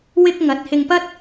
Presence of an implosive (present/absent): absent